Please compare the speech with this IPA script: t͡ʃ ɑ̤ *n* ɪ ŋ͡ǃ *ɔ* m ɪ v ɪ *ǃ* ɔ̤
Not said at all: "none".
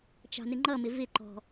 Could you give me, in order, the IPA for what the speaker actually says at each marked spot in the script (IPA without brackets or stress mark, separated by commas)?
n, ʌ, ǃ